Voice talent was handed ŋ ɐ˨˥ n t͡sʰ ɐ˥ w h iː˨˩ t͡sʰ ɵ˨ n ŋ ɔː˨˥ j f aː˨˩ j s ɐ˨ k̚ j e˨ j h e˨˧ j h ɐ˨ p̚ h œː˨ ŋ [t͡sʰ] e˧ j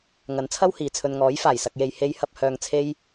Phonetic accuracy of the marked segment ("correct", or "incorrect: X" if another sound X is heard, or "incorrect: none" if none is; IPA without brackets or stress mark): correct